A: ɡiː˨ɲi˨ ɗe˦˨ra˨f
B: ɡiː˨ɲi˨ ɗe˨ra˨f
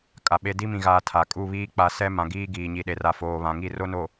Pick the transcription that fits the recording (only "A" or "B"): B